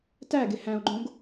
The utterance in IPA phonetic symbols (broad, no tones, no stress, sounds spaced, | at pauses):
t æ ɡ e h æ̃ o̯ ɡ͡ǃ õ ɡ